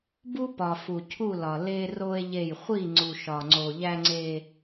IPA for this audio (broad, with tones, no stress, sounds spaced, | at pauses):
b u˦ p ɒ˨ f u˨ cʰ u˦˨ l ɒ˨ l e˦ r o˦ e̯ ʎ e˦˨ j χʷ i˦˨ ŋ͡ǀ u˨ ʃ ɒ˨ ŋ͡ǀ o˨ ʎ æ˦ ŋ͡ǀ e˦